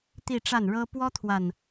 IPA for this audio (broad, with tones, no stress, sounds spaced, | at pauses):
t̪ i˥˧ ʈ͡ʂ a˥˩ n ɻ ɤ˥ p w ɔ˥ t̪ʰ w a˨ n